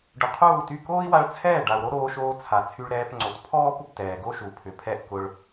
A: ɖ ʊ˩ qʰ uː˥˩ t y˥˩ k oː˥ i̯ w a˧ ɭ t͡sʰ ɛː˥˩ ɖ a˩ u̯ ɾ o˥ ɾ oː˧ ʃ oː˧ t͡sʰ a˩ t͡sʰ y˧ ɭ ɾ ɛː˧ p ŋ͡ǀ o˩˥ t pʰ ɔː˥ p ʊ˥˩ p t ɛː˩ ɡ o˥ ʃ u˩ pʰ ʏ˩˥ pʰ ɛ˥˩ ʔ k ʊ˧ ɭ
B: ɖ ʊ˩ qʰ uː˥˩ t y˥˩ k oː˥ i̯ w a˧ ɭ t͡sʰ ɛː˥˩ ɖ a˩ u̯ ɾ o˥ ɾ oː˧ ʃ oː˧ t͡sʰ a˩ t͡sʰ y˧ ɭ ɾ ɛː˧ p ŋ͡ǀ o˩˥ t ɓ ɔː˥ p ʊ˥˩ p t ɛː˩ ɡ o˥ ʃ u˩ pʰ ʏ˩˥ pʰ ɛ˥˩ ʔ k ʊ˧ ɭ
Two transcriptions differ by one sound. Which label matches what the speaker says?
A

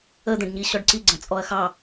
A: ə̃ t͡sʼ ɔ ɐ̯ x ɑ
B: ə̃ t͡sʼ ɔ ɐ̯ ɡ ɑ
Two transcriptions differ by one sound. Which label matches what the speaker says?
A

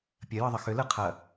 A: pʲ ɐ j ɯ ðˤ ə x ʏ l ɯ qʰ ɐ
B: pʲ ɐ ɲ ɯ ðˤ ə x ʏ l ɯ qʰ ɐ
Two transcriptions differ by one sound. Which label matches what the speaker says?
A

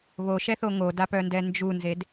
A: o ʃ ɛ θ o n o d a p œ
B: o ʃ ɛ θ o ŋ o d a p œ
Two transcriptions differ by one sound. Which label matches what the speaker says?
B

